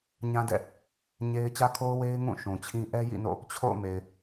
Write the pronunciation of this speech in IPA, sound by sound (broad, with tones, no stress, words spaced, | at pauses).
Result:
ɲã˦dɛ̰˦˨ | ɲe˦ɪ̯ t͡ɕä˦kʰo˦ʊ̯ we˦ɪ̯ŋũ˦˨ ʃũ˨t͡ɕʰĩ˦ ʔɛ˦jḭ˦˨no̰˦˨ | t͡ɕʰo̰˦˨ʊ̯me˨ɪ̯